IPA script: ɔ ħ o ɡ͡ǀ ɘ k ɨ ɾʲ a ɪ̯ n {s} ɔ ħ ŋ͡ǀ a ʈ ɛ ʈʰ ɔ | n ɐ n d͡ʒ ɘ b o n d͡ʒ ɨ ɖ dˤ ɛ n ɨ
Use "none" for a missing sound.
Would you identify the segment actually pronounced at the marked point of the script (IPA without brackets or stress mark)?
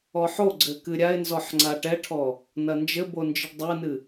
z